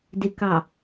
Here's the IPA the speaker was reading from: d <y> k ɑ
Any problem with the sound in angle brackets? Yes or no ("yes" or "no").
yes